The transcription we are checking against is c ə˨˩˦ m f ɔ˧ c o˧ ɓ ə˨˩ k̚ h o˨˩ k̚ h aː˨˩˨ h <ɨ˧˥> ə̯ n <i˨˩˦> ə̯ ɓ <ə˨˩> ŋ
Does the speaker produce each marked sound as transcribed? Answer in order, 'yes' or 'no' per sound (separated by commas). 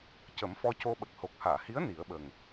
no, yes, yes